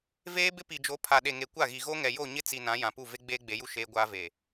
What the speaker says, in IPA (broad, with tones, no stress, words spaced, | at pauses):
veː˦bɪ˦pi˨d͡ʒo˨˦ pʰa˨ɗe˨ŋe˨ kʷa˦˨ɣi˨ ɣo˦ŋɛ˨jo˦˨ɲɪ˦ t͡si˨ nã˨˦ jã˨pu˦˨ve˦ ɡ͡beː˦ɡ͡be˨˦ju˦ ʃeː˦ɡʷaː˦ve˨